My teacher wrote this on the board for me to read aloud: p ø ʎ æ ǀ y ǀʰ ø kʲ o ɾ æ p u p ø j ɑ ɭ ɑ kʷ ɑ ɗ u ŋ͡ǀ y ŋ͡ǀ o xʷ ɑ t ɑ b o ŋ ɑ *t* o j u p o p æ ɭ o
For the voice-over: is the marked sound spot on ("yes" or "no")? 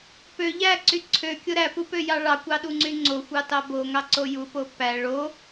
no